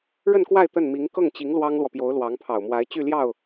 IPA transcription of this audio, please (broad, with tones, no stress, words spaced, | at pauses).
ɻə˥˧nkwa˥˧ɪ̯ t̪ə˥˩nmi˧˥ŋ kɤ˥˩ŋt͡ɕi˧˥ŋ lwɑ˥ŋlwɔ˨pjo˧˥ʊ̯ lwɑ˧˥ŋpʰɑ˨˩ʊ̯mwa˧˥ɪ̯ t͡ɕy˥˧ ljɑ˥˩ʊ̯